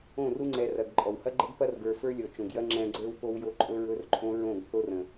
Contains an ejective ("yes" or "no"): yes